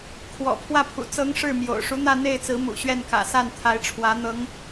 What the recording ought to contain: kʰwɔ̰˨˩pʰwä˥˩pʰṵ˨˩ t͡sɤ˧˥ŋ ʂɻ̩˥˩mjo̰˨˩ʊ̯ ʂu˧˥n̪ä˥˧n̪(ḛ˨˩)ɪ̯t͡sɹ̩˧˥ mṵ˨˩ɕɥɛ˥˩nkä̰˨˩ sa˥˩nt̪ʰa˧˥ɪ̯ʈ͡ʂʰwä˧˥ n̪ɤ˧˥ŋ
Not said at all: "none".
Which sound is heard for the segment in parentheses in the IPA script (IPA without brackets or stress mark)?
e˥˩